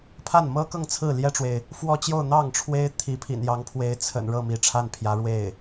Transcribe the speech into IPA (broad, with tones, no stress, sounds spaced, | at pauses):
pʰ a˥˩ n m ɤ˥ k ɤ˥˧ ŋ t͡sʰ ɹ̩˥˩ l j ɛ˥ ʈ͡ʂ w e˨ ɪ̯ | f w ɔ˥˧ t͡ɕ j o˥˧ ʊ̯ n̪ ɑ˥˩ ŋ ʈ͡ʂʰ w e˥ ɪ̯ t̪ʰ i˧˥ pʰ ḭ˨˩ n j ɑ˧˥ ŋ pʰ w e˧˥ ɪ̯ t͡sʰ ə̰˨˩ n ɻ ɤ˥˩ m i˧˥ ʈ͡ʂʰ a˥˩ n pʰ j ä˧˥ ɻ w e˥˩ ɪ̯